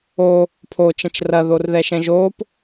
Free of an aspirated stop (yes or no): no